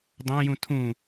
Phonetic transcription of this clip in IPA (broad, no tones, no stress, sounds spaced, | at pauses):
dˤ æ̃ j ũ tʰ ũ